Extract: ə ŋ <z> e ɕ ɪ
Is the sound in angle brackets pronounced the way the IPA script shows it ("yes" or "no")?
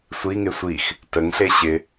no